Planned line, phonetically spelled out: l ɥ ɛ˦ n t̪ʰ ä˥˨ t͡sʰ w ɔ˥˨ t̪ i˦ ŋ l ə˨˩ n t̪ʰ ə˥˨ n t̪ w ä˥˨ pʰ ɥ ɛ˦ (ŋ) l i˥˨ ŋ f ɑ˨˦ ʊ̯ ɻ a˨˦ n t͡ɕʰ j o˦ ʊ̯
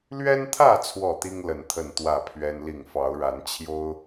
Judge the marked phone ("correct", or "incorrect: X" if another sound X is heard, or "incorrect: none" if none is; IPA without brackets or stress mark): incorrect: n